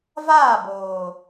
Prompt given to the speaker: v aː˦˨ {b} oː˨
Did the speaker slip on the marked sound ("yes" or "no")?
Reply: no